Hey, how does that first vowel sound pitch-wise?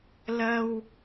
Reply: high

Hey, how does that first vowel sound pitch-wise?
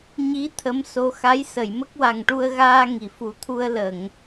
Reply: rising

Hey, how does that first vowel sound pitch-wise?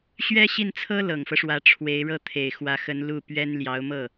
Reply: high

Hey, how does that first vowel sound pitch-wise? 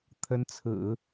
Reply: rising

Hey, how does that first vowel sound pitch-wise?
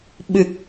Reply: low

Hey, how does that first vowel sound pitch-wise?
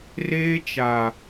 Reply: high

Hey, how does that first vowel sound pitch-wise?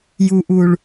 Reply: low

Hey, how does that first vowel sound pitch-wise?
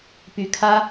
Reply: rising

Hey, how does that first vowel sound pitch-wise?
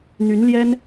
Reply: rising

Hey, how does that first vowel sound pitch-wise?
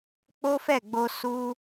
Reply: high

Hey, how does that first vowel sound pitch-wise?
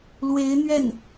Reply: rising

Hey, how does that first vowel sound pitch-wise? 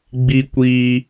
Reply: high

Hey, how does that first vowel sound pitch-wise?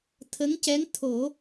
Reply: rising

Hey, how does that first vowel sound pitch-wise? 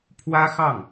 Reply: high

